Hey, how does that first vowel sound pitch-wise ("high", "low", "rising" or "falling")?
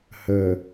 low